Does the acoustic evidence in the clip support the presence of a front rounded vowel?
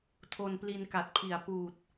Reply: no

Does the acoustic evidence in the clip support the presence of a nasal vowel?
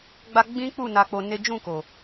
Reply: yes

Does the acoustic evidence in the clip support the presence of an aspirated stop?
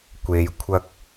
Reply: yes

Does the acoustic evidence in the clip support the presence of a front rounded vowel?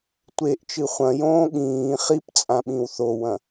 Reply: no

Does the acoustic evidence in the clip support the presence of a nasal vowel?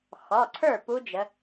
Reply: no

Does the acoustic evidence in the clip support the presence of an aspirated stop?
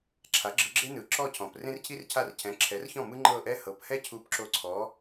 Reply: yes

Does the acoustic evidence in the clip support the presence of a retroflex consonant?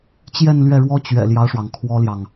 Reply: yes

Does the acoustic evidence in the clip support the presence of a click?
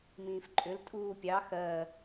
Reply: yes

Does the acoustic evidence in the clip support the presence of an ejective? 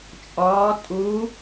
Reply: yes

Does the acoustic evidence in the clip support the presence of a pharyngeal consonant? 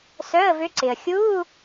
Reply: no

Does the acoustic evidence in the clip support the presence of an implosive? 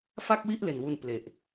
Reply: no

